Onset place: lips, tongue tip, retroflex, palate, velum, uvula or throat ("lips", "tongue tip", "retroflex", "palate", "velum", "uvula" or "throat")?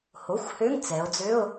throat